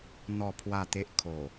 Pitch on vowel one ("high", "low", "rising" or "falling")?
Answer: falling